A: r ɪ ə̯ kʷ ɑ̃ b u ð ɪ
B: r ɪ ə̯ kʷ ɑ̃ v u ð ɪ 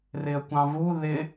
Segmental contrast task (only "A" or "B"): B